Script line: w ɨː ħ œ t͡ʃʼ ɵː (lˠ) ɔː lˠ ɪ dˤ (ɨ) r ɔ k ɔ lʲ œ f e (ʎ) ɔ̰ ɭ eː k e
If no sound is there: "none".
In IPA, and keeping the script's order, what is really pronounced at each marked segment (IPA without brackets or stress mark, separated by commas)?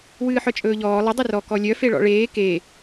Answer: ʎ, ɨ, ɭ